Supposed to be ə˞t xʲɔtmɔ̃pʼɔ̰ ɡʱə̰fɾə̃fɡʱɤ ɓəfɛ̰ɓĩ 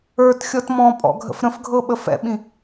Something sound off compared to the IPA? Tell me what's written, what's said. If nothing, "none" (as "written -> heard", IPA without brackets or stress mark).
none